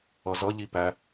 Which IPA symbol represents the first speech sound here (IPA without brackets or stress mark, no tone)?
ʌ